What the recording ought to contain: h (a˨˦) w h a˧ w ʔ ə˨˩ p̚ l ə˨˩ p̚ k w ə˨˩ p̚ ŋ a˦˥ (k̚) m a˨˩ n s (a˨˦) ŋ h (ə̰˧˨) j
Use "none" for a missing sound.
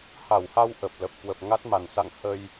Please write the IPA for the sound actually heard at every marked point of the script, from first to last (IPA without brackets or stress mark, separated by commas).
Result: a˧˩, t̚, a̰˧˨, ə˧